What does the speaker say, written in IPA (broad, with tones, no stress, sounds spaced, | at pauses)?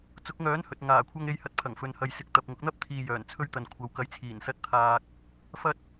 t͡s ʊ˨˥ k̚ ŋ œː˨˥ n h ɵ˨ t̚ ŋ aː˨˩ kʷʰ ɐ˧ ŋ e˨˧ j h ɐ˨˥ t̚ pʰ ɐ˨˩ ŋ f ɵ˨ n h ɐ˨ j s ɪ˨˥ k̚ t̪ ɐ˨ p̚ ŋ ʊ˨˥ k̚ n̪ ɐ˥ p̚ t̪ʰ iː˨ j œː˨˩ n t͡sʰ ɵ˧ ɥ t̪ ɐ˨ n kʷʰ ɐ˨ w k ɐ˨˥ j t͡sʰ iː˨˩ n s ɐ˨˥ t̚ t̪ʰ aː˨ k̚ | f ɐ˧ t̚